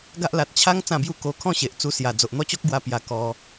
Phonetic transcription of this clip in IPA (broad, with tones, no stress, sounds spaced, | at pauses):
ɡ a˦ ʔ l a˨ t̚ t͡ɕʰ a˦ ŋ t͡s ã˥˧ b j u˥˧ k o˧ kʰ ɔ̃˥˧ ɕ e˨ ʔ t͡s u˧ s j a˨˩ d͡z o˨ ʔ n̪ ɔ˦ t͡ɕ ɔ˦ k̚ ɡ w a˧ p j a˨˩ k ɔ˧